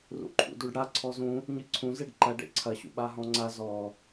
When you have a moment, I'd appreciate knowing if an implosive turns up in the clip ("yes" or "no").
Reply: yes